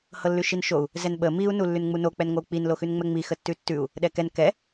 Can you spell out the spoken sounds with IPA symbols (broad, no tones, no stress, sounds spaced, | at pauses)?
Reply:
h ɤ lː ʉ ʃ i n ʃ o u̯ | z ɛ n ɓ ə m i u̯ n u lː ʉ n ŋ͡m u n o k͡p ɛ n ŋʷ ə u̯ k͡p i n l o x ʉ n ŋ͡m ɛ ŋ͡m i x ə tː ʉ tː ʉ u̯ | ɗ ɛ k ɛ n k ɛ